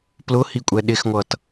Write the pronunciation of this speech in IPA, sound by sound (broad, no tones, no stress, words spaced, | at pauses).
plʊhikʷʼɛ ɗɪxŋʷʌt